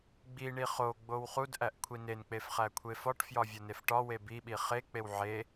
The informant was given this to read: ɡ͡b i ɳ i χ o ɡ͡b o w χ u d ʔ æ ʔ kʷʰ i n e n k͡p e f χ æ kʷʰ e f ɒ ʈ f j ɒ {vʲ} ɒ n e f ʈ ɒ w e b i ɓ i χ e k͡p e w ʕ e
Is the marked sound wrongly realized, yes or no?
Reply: no